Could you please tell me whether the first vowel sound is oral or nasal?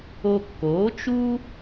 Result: oral